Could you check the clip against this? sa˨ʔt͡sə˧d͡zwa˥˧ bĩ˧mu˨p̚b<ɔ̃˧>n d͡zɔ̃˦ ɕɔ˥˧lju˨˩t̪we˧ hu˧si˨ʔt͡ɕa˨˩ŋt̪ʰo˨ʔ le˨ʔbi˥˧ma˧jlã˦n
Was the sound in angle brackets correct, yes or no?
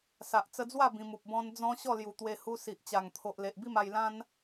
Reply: no